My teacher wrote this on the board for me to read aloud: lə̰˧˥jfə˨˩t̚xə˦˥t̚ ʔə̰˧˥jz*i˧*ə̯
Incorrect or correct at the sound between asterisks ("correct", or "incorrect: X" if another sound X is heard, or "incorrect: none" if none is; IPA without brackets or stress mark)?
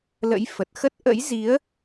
incorrect: i˨˦